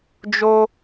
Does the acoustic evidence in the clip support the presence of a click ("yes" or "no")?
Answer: no